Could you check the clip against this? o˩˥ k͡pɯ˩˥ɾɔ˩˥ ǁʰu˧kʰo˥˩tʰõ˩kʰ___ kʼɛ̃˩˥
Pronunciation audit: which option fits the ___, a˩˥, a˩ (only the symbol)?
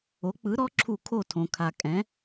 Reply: a˩